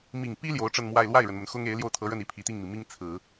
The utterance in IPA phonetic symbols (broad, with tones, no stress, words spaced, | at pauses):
mi˨˩ŋpi˥ ljo˧˥ʊ̯ʈ͡ʂə˥˧nmwa˥˧ɪ̯ lwa˥˩ɪ̯ɻə˩nmə˩n xʊ˥ŋ e˧˥ɪ̯ljo˥˩ʊ̯t̪ʰɤ˧˥ɻə˥˩n i˧˥pʰi˨˩t̪i˥˩ŋmi˩ mi˥ŋ t͡sʰɹ̩˨˩˦